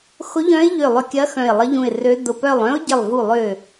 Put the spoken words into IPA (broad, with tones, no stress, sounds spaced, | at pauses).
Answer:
x ʊ˧˥ ʎ œ̃˧˥ ɪ̯ ʎ ø˧˩ lˠ ʏ˧˩ kʲ ɐ˧˥ x œ̃˧˩ ɪ̯ lˠ ə˧˥ ʎ ũ˧˩ ɪ̯ r ø˧˥ d ʊ˧˩ p œ˧˩ lˠ œ̃˧˥ ʊ̯ ɟ ɪ˧˩ lˠ v u˧˩ lˠ ʏ˧˩